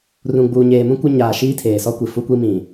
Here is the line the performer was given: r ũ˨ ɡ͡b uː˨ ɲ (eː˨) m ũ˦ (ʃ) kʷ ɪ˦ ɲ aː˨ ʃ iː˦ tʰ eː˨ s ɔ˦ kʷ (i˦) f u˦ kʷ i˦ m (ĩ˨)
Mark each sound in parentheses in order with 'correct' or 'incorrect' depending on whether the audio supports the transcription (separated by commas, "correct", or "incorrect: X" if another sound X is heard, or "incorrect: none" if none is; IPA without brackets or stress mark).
correct, incorrect: none, incorrect: i˨, correct